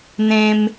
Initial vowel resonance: nasal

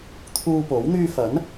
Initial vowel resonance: oral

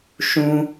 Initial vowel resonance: nasal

